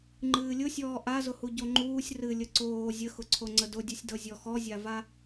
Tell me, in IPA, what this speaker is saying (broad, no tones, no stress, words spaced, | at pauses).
ŋ͡ǃɨːlʲʊsʲɔː ʔazʊhu ɟoŋ͡ǃuːsʲ rɨlʲə ǀoː zʲəxʊǀʰoŋ͡ǀə dʊdʲɨsʲdɤ zʲɔxɔzʲava